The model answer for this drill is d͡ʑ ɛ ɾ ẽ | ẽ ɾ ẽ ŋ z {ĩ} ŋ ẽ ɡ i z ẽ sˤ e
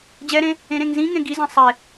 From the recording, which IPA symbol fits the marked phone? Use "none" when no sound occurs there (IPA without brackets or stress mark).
ĩ